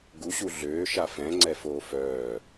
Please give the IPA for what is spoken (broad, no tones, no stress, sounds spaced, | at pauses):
ɡ u ɕ u ɮ øː ʃ a f ɛ̃ ŋ͡ǀ ɛ f oː f œː